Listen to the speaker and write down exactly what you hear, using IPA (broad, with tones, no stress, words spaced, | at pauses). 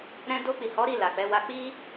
ɾɛ̃˧do˧k͡pi˨ hɔ˨˦ ɾi˦˨ la˨k͡pɛ˨˦wa˦ k͡pi˧